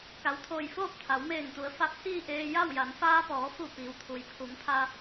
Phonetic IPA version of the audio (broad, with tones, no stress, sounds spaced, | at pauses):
k a˩ w t̪ʰ oː˧˩ j f oː˥˨ p̚ t̪ʰ a˩˧ w m eː˧˩ ŋ t̪ u˩˧ ə̯ f a˧˥ p̚ h iː˥˨ ʔ eː˧ j a˥˨ w j a˩˧ n f aː˧ p ɔː˩˧ f u˧˩ p iː˩ w t̪ʰ u˩ j pʰ u˩˧ ŋ pʰ a˧